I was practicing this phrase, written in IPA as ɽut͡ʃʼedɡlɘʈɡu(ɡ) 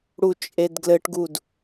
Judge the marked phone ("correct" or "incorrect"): incorrect